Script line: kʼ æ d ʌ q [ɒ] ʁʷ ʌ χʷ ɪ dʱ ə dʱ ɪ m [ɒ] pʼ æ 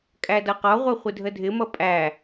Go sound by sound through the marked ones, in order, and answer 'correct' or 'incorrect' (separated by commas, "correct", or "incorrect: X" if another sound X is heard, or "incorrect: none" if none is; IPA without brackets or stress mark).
correct, incorrect: ʌ